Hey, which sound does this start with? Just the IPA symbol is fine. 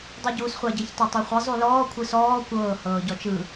dˤ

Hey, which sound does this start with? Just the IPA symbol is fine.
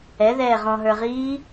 ɛ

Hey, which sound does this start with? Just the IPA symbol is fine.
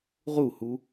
ʁ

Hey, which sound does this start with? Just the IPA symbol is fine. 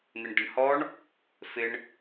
n̪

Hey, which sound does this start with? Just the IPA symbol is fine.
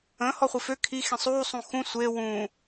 ə̃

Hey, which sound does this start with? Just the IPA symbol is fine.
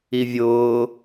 i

